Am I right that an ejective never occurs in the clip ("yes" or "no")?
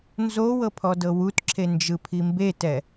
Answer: yes